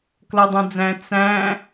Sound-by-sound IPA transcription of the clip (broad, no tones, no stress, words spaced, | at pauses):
klʌdˤũd͡zæ̃ t͡sæ̃